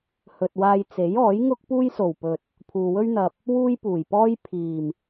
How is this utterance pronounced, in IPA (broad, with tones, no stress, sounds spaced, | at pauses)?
h ɵ˨ t̚ w aː˧ j t͡s e˨˥ j ɔː˨˥ j ŋ ʊ˥ k̚ p uː˥ j s o˨˩ w p ɵ˨ t̚ | pʰ uː˨ w ɵ˥ ɥ n̪ ɐ˨ p̚ | w uː˥ j p uː˨˩ j p ɔː˥ j pʰ iː˨˩ m